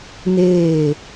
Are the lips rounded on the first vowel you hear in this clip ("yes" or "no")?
no